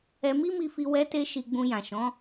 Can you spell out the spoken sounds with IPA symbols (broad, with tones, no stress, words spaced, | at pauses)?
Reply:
ɛ˧mi˦mi˧fi˧ wɛ˧te˧ ʃi˧ɡ͡bũ˧jã˨ ʃɔ̃˨˦